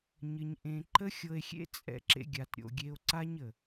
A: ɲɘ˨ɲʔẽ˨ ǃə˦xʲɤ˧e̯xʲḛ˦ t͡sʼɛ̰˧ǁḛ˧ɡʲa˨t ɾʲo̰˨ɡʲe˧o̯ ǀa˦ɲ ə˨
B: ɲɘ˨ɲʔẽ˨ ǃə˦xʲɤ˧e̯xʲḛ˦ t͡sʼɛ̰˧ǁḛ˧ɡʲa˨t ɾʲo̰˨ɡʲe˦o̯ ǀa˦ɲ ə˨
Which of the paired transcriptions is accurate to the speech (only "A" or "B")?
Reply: A